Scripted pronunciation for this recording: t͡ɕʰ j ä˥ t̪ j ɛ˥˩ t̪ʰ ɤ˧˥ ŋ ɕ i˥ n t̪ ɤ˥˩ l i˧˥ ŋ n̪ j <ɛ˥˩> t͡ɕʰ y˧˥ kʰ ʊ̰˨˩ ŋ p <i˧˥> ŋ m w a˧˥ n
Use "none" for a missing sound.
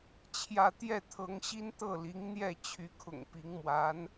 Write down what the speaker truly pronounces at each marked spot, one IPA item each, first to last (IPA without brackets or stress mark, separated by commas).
ɛ˥˩, i˧˥